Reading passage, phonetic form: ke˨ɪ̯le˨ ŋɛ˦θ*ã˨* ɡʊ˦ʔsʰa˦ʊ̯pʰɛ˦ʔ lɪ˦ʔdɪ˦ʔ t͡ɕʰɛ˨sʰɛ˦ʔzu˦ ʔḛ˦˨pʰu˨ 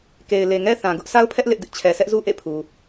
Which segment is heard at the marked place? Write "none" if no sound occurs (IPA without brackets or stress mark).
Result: ã˨